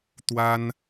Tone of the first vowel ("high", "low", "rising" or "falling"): high